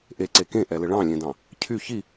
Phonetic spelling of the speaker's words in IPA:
ʔeǀe kẽʔɛlɘ ɭɑ̃lʲẽdɑ̃ | cʰy çi

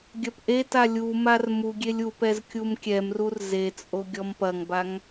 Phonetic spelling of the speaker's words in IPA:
ɡʲɐpʔeta lʲumar muɡʲelʲ upɛz kʲumkʲɛmrur zet͡sʼo ɡʲɔmpɐŋbaŋ

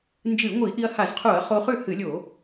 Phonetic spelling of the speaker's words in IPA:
nd͡ʒɨ˧˩˧ŋʷi˧˩˧ ʔi˧ɐ̯ha˧˩˧zqʰu˧˩˧ɐ̯χo˧ χʉ˥˩hɨ˧˩˧lʲo˧˩˧

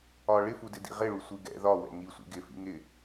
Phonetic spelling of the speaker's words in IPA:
ɒ ɭɪfudɪ dḭʁɪɭu sʷiɡɛ̰ ðɒwɛ̰ ŋisʷḭ ɡɪfḭ ŋɪ

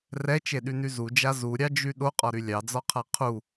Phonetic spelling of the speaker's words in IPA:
rɛt͡ʃeɗyny zud͡ʒa zuɾʲɑd͡ʒy ɗoqʼɒɾy lʲɑd͡zɒqʰa qʰu

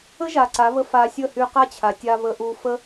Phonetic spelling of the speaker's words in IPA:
ə˦ʒa˨ ǀa˨˦βə˧ fa˧ sʲə˦˨hy˧ qa˦t͡ɕʰa˨tʲa˧ βə˧ʔu˧ fə˦

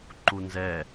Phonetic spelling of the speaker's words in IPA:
ǃunzɛ

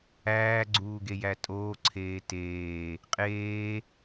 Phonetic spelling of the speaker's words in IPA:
æːɡ͡ǀuːɡejæ tʼoːǀʰeː teː | qʼeː

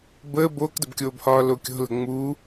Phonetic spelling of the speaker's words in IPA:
bəː boːkdəbkʲoːbhɒː lokʲo̤lə̤ ŋ͡muː

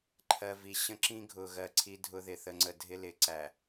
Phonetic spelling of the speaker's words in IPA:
ǃʰɜ˨vi˨ ɕə̃˦ǁĩ˦ ɡʱʊ˨ɣɜ˨ ǀʰi˦dʱʊ˦ðɪ˨ θə˨ŋ͡ǀə˨ dʱɪ˦lɪ˨ǀæ˨

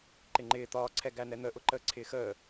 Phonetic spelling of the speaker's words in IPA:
ǃɪŋ͡ǃɪː t̪ɒːǀʰɛ ɡæn̪ɛn̪əʔʊ ǃəːǀʰɪːxəː

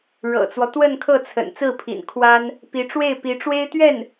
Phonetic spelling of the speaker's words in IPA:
ɻɤ̰˨˩t͡swɔ˦ t̪wə˥˧nkʰɤ˥˩ t͡sʰə̰˨˩n t͡sɹ̩˥˩pʰḭ˨˩n kʰwa˥n | pi˧˥ʈ͡ʂwe˥˩ɪ̯ pi˧˥ʈ͡ʂwe˥ɪ̯t̪ɥɛ˥˩n

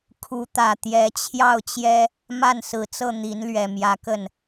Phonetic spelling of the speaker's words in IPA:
kʰu˧˥t̪ä˨˩ t̪jɛ˧˥t͡ɕʰjɑ˥˩ʊ̯t͡ɕjɛ˥ | ma˥˩nsɹ̩˨˩t͡sɤ˥˩ n̪i˧˥nlɥɛ˨˩ mjä˧˥kə˥˩n

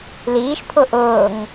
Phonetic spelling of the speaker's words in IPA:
liːʃ pʰʊʔʊːŋ

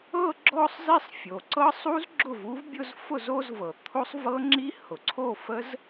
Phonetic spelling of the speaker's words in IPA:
ɤ˥˧ ɡ͡ǁɔ˥˧sˤzi˥˧sˤ fʲo˩ǀɤ˦˥sˤu˦˥z ɡ͡ǁʊ˥˩vu˦˥vbʲʊ˥˧z fʊ˥˩zo˥˧zvɤ˩ t̪ʰo˦˥sˤ vɤ˦˥ŋ͡ǁi˦˥ hʊ˩ǀʰo˥˩fə˦˥z

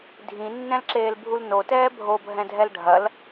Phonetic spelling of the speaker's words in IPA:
dʱĩnːɛ̃lǁeːlbʱul notɛː bʱobʱɛ̃dʱɛl ɖʱɐl

